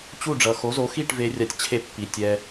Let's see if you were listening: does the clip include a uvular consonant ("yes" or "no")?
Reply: no